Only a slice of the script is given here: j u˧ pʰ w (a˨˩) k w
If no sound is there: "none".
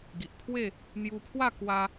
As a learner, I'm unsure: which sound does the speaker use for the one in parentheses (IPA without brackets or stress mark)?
a˥˧